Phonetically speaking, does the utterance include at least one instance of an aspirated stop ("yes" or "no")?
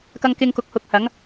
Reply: no